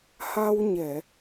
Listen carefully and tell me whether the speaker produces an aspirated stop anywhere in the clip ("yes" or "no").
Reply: no